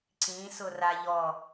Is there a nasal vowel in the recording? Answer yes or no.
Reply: yes